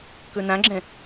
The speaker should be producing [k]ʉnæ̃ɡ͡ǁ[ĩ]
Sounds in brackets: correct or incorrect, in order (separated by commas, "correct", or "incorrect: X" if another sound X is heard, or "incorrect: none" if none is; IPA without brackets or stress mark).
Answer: correct, incorrect: ẽ